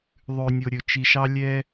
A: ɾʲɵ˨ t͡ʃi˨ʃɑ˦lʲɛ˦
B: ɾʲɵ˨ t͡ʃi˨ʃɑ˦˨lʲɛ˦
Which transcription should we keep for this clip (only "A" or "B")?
A